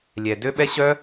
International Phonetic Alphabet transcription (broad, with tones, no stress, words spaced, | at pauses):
lʲɛ˨ dø˦ɓɛ˦ ɕœ˦